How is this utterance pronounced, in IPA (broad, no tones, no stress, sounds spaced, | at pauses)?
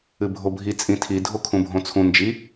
ɨ bʱ o bʱ i t͡sʼ ĩ tʰ i dʱ o kʰ ũ bʱ õ t͡sʰ ũ n d͡ʒ i